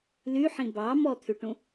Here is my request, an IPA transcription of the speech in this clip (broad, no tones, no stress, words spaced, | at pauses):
lyħĩ bɑ mɔt̪ʰyʈũ